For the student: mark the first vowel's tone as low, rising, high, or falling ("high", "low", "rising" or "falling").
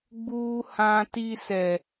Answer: high